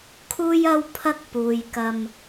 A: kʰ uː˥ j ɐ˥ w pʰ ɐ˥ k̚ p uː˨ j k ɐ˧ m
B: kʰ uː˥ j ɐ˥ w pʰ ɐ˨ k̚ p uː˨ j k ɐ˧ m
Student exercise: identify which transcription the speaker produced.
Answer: A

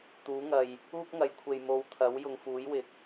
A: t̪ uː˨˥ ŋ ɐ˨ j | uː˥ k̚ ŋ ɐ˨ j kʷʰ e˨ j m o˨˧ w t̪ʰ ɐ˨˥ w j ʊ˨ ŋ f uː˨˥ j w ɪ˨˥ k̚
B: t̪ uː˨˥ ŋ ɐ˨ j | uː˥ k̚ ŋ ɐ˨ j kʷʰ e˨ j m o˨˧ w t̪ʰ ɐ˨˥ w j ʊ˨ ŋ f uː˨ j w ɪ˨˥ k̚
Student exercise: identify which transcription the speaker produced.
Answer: A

